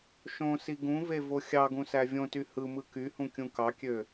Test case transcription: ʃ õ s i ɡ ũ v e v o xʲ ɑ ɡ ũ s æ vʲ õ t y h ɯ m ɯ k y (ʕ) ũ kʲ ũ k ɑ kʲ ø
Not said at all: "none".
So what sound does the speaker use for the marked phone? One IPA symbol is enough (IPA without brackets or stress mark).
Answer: h